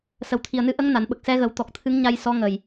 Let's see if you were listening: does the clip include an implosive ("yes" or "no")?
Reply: yes